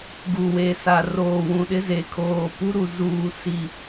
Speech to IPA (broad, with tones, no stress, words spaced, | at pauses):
ɡu˨we˨sa˨ roː˨wũ˨ɗɪ˦ ze˨ kʰoː˨ pu˦ɾu˨ zuː˨ si˨